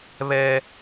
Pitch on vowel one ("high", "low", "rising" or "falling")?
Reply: high